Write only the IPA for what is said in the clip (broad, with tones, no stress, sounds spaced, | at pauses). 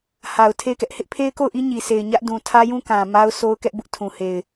h a˨ ʊ̯ tʰ e˦˨ ɪ̯ k ɛ˦ ʔ h ɪ˦ ʔ pʰ e˦ ɪ̯ k o˦˨ ʊ̯ ʔ i˦ ɲ i˨ s e˨ ɪ̯ ɲ ä˦ ʔ d ũ˨ tʰ ä˦ j ũ˦ k ã˨ m a˦ ʊ̯ s o˦ ʊ̯ k ɛ˦ ʔ b ʊ˦ ʔ tʰ ũ˨ h e˨ ɪ̯